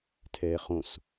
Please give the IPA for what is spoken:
tʰ ɛː χ õ s

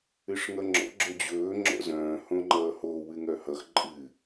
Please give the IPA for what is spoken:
ɨ ʂ ŋ ʌ ŋ͡ǁ ɔ̰ ɡ͡ǁ ɵ d͡ʑ ɵː ŋ͡ǁ ɔ̰ z œ̃ː h õ ŋ͡ǃ ʌː h o w ɨ ŋ œ h ʌ x ǃʼ ɨ

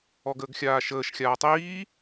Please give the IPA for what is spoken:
ɔ ɡ əː ɡ xʲ aː ʃ əː ʃ xʲ aː tˤ iː

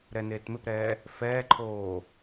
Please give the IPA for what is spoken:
ɾ ɛ n eː t m ɪ p ɾ ɛː | f ɛː ǃʰ oː

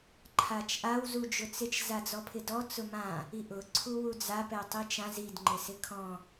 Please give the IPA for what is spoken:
ǃʰ a t͡ʃ ʔ a w z u d͡ʒ ʊ t͡s ɪ t͡ʃ z a d͡z ɔ pʰ ɪ d ɔ t͡s ʊ m ã | i ʔ ʊ ǀʰ u w u d͡z a p ɛ tˤ i t͡ʃ ã z i d ŋ͡ǃ ɪ s ɪ kʰ ɔ̃

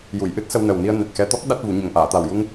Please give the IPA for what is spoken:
j u˨˩˨ j ʔ ɨ˦˥ t̚ s ə˧ w n ə˨˩ w n i˧ ə̯ n ɛ˨˩ t̚ x ɛ˧ t̪ ɔ˦˥ k̚ ɗ a˦˥ t̚ v u˨˩˦ ɲ ə˨˩ ŋ ʔ aː˨˩˨ t̪ a˨˩ w j u˧ ŋ

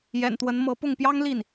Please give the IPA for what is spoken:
j ɛ̰˨˩ n t̪ w ə˧˥ n m ɤ˧˥ p ʊ˥˩ ŋ p j ɑ˥ ŋ l i˥˩ n

